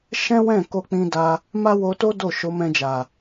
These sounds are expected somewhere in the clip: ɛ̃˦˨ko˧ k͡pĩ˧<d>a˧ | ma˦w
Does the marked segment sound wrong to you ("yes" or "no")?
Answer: no